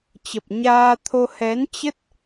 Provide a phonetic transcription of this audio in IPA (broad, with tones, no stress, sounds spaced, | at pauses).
t͡ɕ ə˨˩ p̚ ɲ aː˧ t̪ʰ o˧ h ɛ˨˦ n t͡ɕ ə˦˥ t̚